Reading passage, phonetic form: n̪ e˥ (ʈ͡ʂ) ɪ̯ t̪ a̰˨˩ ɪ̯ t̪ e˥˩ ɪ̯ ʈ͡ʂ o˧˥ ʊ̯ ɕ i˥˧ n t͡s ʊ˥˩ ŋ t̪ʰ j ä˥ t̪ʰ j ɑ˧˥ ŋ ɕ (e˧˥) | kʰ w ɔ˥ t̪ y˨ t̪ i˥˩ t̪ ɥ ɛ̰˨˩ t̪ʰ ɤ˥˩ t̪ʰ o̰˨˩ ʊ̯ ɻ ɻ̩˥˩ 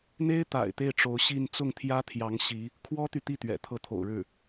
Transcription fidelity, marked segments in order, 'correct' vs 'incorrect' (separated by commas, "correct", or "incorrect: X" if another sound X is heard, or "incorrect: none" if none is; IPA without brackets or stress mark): incorrect: none, incorrect: i˧˥